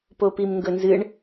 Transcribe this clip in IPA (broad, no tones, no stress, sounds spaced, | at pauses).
p o p i m ŋ ɡ ɵ n z ɨ ɳ